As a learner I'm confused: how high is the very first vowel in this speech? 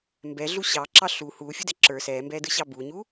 mid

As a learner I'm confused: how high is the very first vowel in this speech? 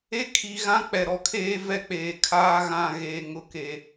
mid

